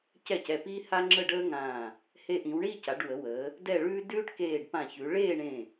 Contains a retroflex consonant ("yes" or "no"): yes